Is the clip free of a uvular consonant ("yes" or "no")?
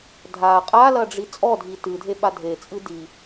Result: no